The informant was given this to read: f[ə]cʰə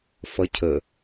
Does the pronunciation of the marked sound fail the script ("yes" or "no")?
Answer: yes